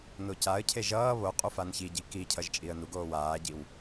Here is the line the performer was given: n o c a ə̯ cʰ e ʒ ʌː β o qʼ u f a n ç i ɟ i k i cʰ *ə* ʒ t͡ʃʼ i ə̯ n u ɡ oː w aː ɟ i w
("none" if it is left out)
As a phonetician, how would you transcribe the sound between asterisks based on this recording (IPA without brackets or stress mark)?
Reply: ʌ